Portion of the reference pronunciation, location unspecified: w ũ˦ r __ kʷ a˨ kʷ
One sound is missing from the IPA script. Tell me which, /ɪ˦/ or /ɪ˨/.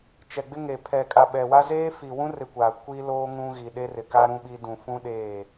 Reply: ɪ˨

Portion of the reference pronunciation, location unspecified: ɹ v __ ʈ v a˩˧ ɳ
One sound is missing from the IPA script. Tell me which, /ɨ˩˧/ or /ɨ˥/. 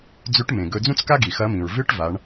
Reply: ɨ˥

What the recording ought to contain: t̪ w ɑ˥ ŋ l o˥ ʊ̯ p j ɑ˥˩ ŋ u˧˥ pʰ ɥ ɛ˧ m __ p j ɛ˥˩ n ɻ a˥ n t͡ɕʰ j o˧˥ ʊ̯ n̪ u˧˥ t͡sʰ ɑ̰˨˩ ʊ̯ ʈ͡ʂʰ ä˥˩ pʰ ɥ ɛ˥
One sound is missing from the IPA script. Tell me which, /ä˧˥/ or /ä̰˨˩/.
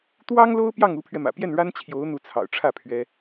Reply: ä̰˨˩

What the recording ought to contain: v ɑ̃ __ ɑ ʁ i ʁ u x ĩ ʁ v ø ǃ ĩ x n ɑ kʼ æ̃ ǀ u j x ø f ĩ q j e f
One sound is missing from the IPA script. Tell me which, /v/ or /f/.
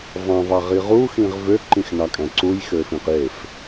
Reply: v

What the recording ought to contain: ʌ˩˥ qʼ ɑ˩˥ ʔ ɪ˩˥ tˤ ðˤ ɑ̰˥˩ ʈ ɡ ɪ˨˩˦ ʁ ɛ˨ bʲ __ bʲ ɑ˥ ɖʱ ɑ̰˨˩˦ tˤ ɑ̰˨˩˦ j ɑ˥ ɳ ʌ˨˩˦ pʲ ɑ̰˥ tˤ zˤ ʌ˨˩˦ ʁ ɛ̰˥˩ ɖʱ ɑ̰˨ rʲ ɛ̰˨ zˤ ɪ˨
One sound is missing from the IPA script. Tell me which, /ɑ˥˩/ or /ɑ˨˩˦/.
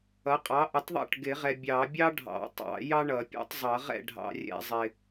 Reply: ɑ˨˩˦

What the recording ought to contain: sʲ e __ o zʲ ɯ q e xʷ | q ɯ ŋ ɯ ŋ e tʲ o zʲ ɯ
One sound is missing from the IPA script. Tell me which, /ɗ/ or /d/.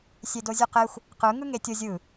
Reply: d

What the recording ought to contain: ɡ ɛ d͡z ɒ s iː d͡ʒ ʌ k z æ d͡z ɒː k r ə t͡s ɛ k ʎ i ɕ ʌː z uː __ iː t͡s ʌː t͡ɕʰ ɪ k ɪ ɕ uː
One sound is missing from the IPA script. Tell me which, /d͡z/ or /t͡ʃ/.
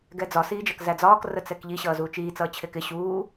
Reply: t͡ʃ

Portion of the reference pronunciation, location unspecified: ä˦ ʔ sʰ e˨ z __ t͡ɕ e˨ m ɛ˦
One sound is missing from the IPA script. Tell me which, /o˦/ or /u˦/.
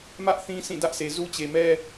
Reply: u˦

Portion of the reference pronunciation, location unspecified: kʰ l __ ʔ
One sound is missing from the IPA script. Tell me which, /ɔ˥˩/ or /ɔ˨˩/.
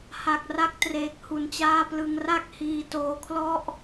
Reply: ɔ˥˩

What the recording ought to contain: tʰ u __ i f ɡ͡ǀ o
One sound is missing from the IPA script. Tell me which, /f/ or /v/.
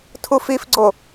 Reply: f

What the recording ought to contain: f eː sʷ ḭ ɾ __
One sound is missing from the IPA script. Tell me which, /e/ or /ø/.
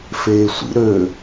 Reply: ø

